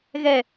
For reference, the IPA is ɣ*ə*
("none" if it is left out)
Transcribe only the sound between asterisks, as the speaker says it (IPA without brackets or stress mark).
ɛ